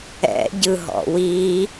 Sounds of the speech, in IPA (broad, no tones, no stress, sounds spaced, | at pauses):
ɛ̰ ɟ ɯ ɦ ɔ̰ w i